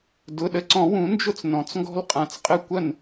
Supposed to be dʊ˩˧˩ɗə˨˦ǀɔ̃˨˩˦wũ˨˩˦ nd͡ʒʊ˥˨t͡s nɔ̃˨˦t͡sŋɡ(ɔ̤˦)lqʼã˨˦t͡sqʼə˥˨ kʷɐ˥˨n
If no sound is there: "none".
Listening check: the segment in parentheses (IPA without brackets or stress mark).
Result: ɔ̤˦